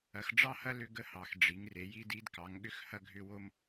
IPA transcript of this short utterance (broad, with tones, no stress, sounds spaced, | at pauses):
ɐ˩˧ x ɖ͡ʐ ɑ˦ h ɐ˦ l ʏ˦ ɡ ə˦ h ɑ˩˧ x ɖ͡ʐ i˩˧ ŋ r e˩˧ j i˦ d i˦ d k ɑ˩˧ ŋ ɠ ʏ˦ x h ɐ˦ ɡʱ ʏ˦ w o˦ m